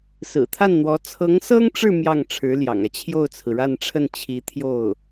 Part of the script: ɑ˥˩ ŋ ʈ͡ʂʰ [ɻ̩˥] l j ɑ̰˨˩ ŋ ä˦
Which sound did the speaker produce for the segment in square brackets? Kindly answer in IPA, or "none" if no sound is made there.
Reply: ɻ̩˧˥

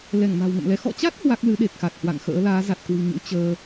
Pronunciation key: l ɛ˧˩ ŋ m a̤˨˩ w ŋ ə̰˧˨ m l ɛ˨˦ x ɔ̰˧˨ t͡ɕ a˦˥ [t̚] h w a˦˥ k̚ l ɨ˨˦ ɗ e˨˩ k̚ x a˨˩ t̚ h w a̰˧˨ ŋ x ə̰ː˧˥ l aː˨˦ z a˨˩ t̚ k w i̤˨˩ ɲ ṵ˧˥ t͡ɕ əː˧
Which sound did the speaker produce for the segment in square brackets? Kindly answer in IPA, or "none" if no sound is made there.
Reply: t̚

